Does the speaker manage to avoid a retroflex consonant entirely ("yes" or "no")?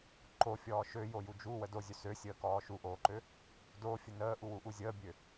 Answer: yes